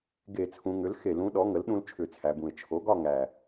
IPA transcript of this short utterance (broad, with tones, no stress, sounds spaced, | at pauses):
ɡ e˧˩˧ t͡sʰ ũ˩˧ ŋ ʏ˩˥ l x e˧˩˧ l ũ˩˥ ɗ ɔ˩˥ ŋ ə˩˥ l ɗ ũ˦ l t͡ʃʰ ʏ˧˩˧ t͡sʰ æ˩˧ b ũ˨˩ ɪ̯ t͡ʃʰ o˩˥ ɡ ɒ˥˨ ŋ æ˨˩